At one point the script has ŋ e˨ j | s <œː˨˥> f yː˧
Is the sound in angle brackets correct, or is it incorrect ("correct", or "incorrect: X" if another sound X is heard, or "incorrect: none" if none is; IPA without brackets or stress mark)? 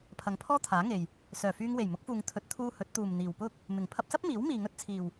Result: incorrect: œː˨˩